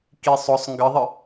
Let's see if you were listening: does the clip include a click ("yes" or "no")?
no